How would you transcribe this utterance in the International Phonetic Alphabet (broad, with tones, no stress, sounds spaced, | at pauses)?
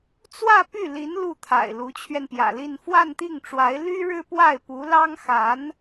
t͡s w ä˥˧ p y˥˩ l i˧˥ n l u˥˩ t̪ʰ a̰˨˩ ɪ̯ l u˧˥ t͡ɕʰ ɥ ɛ˧ n p j ä̰˨˩ l i˥˧ n f w a˥˧ n t̪ i˥˩ ŋ ʈ͡ʂ w a˧˥ ɪ̯ l y˥ ɻ ɻ̩˥ p w a˥˩ ɪ̯ p u˧˥ l ɑ˥ ŋ x a˧˥ n